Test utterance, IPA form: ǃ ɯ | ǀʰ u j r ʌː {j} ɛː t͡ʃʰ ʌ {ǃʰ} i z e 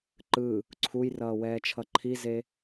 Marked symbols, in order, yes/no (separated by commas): no, yes